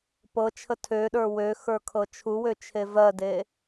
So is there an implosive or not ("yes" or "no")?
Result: yes